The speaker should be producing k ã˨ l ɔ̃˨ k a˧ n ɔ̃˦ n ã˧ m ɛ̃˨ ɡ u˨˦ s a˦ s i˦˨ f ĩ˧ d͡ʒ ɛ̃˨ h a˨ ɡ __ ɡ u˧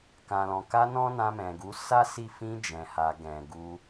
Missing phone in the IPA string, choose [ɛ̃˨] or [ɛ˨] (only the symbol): ɛ̃˨